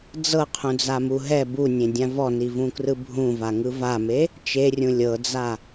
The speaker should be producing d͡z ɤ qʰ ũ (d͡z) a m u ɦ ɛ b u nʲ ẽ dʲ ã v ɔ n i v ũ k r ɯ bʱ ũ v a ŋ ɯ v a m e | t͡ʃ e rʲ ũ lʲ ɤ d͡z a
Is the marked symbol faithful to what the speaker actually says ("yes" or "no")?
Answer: yes